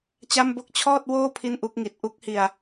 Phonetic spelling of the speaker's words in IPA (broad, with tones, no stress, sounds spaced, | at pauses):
t͡ɕ a˥˩ m b o˥˩ k̚ t͡ɕʰ ɔː˥˩ t̚ w oː˥˩ pʰ i˥˩ n ʔ u˦˥ k̚ ŋ i˨˩ t̚ ʔ u˥˩ k̚ h i˧ a̯